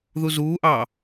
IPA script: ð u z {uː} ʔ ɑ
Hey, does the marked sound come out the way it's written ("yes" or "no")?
yes